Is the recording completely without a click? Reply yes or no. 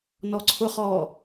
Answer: no